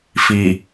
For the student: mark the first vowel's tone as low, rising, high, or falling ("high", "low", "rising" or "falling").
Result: low